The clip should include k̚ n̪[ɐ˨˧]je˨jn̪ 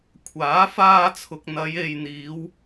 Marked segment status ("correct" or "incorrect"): correct